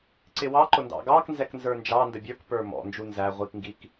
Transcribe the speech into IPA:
ǀɪwɑǃʊ ndɑ̰ɡɑknzɛk nzə˞nd͡ʒɑndə bʲə˞kpə˞ mɔ̰nd͡ʒu nzæ ʁʷikŋɡik

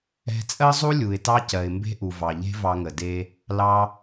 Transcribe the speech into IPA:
ɛ̤˧ t͡sʼɜ˥zˤu˥lʲu˩ɪ̯ tɑ˥cɜ˩ɪ̯mbe̤˥ʔu˩ vɑ˩ʎe̤˥vɑ˧ŋə˩ de˧ | lɑ˧

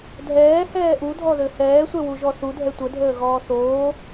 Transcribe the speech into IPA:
dʱɛːhɛː ʔudʱɔðø hɛːsʷɛwuʒɔ θudʱɛ tʷədʱəːɣɔː θoː

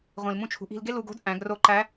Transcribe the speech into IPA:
ʁʷĩ˩l mũ˧t͡ʃʰṳ˩˧ʔi̤˧l ɡe˥lu˧ɡo̤˥d ʔæ̃˩˧ɡro˧˥ǃæ˧˥

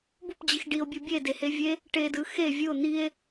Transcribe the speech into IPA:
bup d͡ʑixɖio̯bʲu bʲedehe vʲe | ʈedɯ xe vʲɯo̯ n̪ie̯

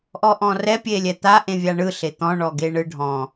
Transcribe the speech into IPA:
ʔɔʔɔ̃rɛ pʲelʲɛt̪a ʔẽvʲaɳɯ ɬet̪ɔ̃ ɳɔɡeɳɯɖʱɔ̃

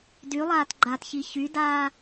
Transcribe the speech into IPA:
dylˠaːt ɡ͡ǃatçi çydaː

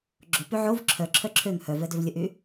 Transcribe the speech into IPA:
ɡ͡ǁopy ʕov ǁʰœǁʰœ ǁʰøŋ hœvɛ døvlʲəʔy

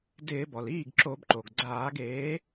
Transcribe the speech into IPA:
dɪː˧˩˧bɔ˩l iː˥˩ɡǁo˧˩˧bǃo˩ɡɡ͡ǀaː˧˩˧ɡ eː˨˥

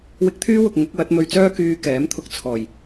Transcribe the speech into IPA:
wɪ˧k̚t̪ʰyː˥wʊ˨k̚ ŋʊ˨˥k̚wɐ˨˥t̚ mɵ˧ɥt͡sœː˥ kyː˧ kɛː˨˥mt̪ʰʊ˧k̚t͡sʰɔː˨˩j

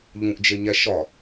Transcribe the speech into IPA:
ʎũʔd͡ʒeɲæ ʃɒ

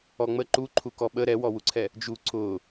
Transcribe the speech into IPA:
ɔŋ͡mə ǃuǃʰu kɔɓə ɾɛwɔwuǀʰɛ | d͡ʒu ǀʊ

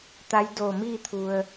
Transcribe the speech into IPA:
t̪a˧˥jdoː˧˩miː˥˨t̪ʰu˩ə̯

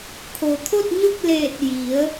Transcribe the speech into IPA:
kʰo˩t̪ʰo˥˨t̚ɲo˥˨k̚leː˧˩t̚ ji˩˧ə̯

